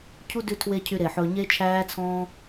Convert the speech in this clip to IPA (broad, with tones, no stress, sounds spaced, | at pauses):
cʰ u˦ d ʉ˧ tʰ w e˦ cʰ y˧ ɾ e˨ ħ ɵː˧ ɲ e˦ t͡ʃʰ æː˦ t͡sʰ ɔ̃ː˦